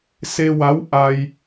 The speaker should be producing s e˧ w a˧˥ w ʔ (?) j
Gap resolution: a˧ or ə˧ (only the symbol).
a˧